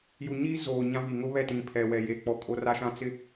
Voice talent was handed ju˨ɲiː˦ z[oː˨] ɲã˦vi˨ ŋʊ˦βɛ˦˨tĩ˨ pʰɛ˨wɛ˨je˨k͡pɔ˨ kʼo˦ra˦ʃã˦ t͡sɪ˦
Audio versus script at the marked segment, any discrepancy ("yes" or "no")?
no